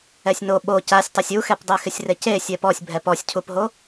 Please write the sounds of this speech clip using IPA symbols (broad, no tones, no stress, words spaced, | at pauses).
ɛsʲno ɓo casʲtˤosʲ uxɛpdˤɛxɪsʲ rece sʲɛpɔsʲbʱɛ pɔsʲcʰupɦo